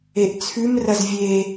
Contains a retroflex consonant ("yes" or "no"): no